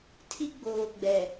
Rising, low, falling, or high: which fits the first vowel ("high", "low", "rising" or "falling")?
high